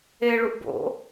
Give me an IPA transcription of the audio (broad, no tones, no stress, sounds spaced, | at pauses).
e ɭ u ʔ b o̰